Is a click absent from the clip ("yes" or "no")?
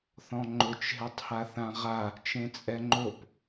no